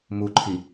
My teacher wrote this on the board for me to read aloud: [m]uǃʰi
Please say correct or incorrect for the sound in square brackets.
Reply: correct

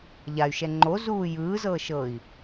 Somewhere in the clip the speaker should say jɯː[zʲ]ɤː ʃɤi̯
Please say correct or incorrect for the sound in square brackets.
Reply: incorrect: z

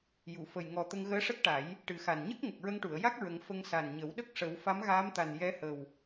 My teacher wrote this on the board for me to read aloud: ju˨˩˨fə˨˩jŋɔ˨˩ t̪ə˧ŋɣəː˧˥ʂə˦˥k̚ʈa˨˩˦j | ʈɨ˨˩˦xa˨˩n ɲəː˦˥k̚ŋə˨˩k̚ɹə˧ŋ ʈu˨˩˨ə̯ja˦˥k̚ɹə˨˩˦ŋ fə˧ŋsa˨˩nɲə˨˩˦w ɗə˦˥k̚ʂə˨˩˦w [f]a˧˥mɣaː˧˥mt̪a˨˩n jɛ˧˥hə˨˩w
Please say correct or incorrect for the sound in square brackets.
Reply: correct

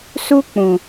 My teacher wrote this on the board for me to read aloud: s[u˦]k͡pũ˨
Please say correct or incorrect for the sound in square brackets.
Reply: correct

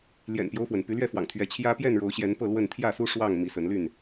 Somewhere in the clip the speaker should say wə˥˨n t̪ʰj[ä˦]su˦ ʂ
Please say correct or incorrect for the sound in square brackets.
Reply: incorrect: ä˥˨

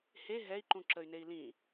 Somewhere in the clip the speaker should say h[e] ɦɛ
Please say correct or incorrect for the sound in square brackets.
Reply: correct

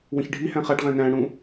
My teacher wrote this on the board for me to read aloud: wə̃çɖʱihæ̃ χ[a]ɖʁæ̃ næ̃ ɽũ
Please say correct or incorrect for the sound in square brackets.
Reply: correct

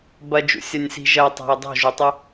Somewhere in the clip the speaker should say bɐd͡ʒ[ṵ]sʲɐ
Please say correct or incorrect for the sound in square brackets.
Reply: correct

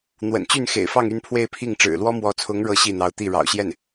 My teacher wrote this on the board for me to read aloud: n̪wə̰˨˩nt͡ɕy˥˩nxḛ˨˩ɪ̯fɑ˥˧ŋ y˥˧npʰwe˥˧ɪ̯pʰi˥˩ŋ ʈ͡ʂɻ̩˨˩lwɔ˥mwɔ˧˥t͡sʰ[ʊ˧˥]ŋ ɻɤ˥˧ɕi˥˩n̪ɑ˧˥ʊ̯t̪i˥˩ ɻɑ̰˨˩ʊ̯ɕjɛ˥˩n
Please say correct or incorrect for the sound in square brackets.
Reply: correct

